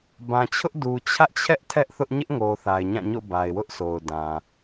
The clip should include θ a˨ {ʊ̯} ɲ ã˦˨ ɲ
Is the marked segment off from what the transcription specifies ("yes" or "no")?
yes